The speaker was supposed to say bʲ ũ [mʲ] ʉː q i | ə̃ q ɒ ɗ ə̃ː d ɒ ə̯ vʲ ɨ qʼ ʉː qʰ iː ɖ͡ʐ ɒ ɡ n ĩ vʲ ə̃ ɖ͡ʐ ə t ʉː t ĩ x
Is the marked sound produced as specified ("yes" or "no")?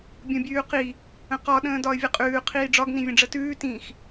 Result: no